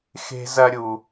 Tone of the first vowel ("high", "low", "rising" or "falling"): high